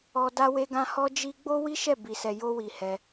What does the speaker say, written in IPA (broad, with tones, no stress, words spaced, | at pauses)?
ɔ˧ da˧we˧ɡã˧ hɔ˦d͡ʒi˦ ɡ͡bo˦ wi˦ʃɛ˦˨bi˨sɛ˨ jo˧wi˨ hɛ˧